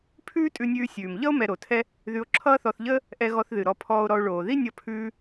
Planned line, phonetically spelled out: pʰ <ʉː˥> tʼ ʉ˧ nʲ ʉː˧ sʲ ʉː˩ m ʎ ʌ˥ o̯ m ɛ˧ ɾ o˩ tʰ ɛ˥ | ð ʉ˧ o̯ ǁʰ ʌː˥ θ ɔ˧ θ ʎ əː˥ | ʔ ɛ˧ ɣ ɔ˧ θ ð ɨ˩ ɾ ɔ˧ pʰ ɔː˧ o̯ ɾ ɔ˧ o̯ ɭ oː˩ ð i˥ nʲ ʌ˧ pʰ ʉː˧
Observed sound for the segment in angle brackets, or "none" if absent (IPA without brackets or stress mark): ʉː˥